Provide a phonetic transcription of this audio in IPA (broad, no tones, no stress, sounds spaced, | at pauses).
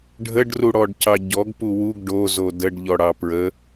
ɖʱ ə ɖ r u ɽ ɔ ɖ c ɑ ɟ ɔ ɡ p u w u ɡ ɖ o z o d ə ɖ ʎ ɔ ɽ ɑ p ɹ ə